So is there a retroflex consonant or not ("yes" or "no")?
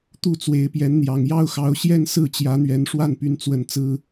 yes